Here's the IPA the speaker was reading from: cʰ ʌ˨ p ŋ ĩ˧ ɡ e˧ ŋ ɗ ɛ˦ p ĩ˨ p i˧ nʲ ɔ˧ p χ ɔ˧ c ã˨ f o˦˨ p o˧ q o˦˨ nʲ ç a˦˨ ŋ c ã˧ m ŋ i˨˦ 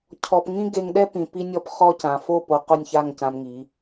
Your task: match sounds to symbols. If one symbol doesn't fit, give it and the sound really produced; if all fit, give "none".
ʌ˨ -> ɔ˨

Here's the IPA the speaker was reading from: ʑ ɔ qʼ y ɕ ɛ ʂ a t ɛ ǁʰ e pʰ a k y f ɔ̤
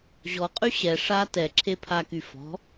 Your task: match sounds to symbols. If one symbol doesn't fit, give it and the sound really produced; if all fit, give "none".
none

